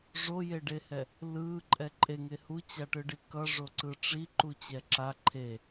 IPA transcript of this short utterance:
ʐojeɖehɛ | lɯ ǃʼɛǃʼeŋe hut͡ɕaʈɯɖi kʌʐoǀɯ ʈ͡ʂi ǃut͡ɕɛǁa ǃʰe

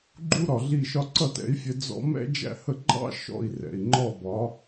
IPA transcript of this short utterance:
ɡ͡ǃu˥ɾɒ˩ ɮi˥˩ʃɒ˥ ǀʌ˥˩tɛ̰˩˥i̯fʲɛ˧ d͡zɔ̰˧ mɛ̰˥d͡ʒæ̰˥˩hə˥˩ ɡ͡ǃɑ̰˥ ʃɔ̰˥˩i̯rɛ̰˩i̯ŋ͡ǃɔ˥˩bɒ˩˥

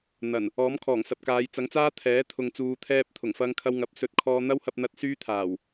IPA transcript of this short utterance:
n̪ɐ˨˩n | ɔː˨˥mkʰɔː˨˩ŋ sɐ˨p̚kaː˨˧j t͡sɐ˨˥ŋt͡saː˥t̪ʰɛː˨˥ t̪ʰʊ˨ŋt͡suː˨t̪ʰɛː˧p̚ t̪ʰʊ˨˩ŋfɐ˧ŋkʰɐ˧w ŋɐ˨p̚sɵ˧t̚ kʰɔː˧n̪ɐ˥whɐ˧p̚n̪ɐ˧t̚ syː˥ t̪ʰaː˨˩w

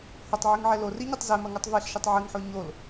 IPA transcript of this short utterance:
hotˤʕɨŋʕɛ loriɲitˤ zɛmɐŋutˤ veɬʃɨtˤ ʕɨŋħo ɲol

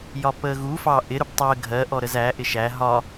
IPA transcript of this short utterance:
jɒpəːɣu fɑ ʔɪɾʊb tˤəː ɡʱɜʔɔɾəz æ ʔɪʃæ ɦɒ

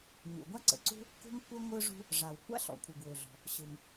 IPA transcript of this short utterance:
ɲṵ˩ɡʷa˥ǀə̰˩ǀṳ˥ | kṳ˥ŋkʷə˥ ŋʷɯ˥ʐṳ˥ | ʐa˩wkʷa̰˥ɬɔ̰˩kʷʰɯ˩ ɡwø˩ɮɔ̤˩ | ɕɯ˩ŋ

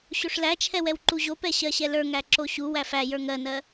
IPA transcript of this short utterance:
ɕoʂlæt͡ʃʰɛwɛw ǃuʑopɛ ɕɜɕɛlə˞ŋæ ǁoɕu wæfæjə˞ ŋɜnɜ

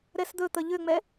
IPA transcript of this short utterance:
ɾɛsd̪ɵ t̪əʎʏŋ͡mɛ

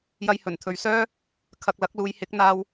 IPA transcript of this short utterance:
jɐ˧jhɵ˨˩nt̪ʰɵ˨˧ɥsœː˥ | kʰɐ˨k̚lɐ˨˥k̚luː˨˧j hɪ˨˥k̚n̪aː˧w

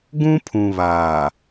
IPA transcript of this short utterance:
ɡũ˦pʰũ˨βaː˨

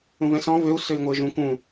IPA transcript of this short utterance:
ũvɛ̃sɔ̃ vøu̯ søi̯ŋʷɘːʒũ kũ

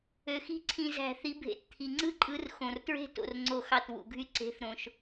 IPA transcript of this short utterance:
ø˩xi̤˥˧ǀʰĩ˧˩ zæ̤˧˩θi˨˦ bʱḛ˨˦t t̪ʰi˩ŋ͡ǀɯ˥˧ǃʼɯ˨˦r xõ˩rtɹe̤˥˧ to̰˧˩rŋ͡ǀo˧˩xɑ˧˩t wṵ˩ɡʱy˧˩ ǀe̤˨˦θ ɾõ˩ʃ

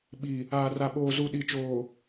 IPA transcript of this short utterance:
ɓi˨ | aː˨ra˨ɓoː˨zu˨ ɗi˨t͡ʃoː˨

